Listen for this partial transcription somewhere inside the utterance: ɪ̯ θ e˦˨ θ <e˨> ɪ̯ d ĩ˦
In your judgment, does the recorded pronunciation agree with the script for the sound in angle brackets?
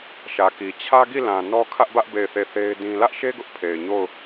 no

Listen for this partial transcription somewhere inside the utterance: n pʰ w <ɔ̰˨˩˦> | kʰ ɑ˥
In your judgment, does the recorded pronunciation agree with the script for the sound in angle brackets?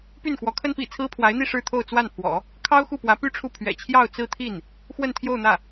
yes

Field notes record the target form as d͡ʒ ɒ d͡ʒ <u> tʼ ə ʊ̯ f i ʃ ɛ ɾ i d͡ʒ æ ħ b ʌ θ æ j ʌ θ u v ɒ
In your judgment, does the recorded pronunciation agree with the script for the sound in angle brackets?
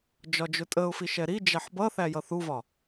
no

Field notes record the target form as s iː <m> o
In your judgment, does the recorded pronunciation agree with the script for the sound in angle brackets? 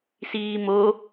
yes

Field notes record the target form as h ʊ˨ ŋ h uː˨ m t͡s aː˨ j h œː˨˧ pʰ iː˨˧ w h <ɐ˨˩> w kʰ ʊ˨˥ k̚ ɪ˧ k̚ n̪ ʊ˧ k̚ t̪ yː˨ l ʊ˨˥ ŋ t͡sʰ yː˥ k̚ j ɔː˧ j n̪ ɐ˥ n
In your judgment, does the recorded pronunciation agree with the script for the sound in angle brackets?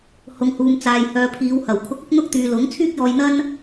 yes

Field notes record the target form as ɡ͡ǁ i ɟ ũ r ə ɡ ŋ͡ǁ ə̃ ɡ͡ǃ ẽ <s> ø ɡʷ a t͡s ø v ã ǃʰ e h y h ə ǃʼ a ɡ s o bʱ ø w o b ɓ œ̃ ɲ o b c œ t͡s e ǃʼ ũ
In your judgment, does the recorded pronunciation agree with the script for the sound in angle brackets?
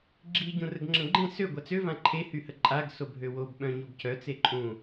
yes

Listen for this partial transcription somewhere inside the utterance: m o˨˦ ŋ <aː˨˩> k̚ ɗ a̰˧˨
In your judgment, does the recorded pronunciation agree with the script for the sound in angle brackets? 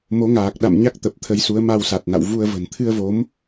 yes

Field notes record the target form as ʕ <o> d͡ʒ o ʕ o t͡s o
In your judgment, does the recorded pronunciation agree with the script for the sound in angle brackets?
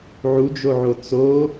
no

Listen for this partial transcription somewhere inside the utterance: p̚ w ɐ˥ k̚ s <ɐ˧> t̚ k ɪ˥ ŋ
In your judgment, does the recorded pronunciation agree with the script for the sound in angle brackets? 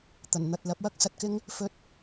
yes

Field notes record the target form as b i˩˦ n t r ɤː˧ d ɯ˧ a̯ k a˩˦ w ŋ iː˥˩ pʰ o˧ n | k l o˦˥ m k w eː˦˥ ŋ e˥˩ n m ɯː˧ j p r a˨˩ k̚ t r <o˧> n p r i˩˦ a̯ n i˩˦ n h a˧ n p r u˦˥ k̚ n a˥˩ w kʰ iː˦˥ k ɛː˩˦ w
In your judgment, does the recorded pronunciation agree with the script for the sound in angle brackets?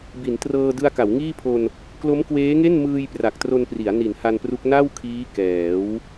yes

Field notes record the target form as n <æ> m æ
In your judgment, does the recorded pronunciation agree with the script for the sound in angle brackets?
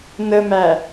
no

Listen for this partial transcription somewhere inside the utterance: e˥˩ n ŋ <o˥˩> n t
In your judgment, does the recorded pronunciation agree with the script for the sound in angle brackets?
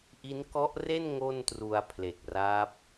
yes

